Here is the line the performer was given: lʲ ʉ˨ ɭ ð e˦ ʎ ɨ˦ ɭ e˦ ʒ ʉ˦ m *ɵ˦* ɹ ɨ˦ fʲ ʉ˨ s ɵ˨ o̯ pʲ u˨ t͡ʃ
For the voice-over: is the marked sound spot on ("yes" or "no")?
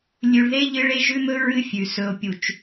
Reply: yes